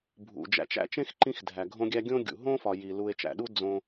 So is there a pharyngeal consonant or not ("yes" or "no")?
no